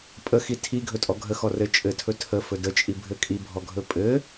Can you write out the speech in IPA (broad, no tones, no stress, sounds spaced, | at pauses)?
pʼ ə x i tʰ i ɡʱ ɵ tʼ ɔ ɡʱ ə x ɔ r ɘ t͡ʃʼ ɘ tʰ ɵ tʰ ə f ɵ d ə t͡ʃʼ i bʱ ɘ kʼ i bʱ ɔ ɡʱ ɵ pʼ ɘ